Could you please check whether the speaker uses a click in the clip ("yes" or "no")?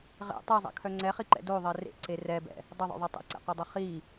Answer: yes